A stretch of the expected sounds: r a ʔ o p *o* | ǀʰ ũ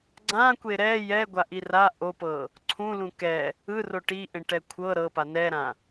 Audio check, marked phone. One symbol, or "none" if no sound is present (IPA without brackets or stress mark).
ɤ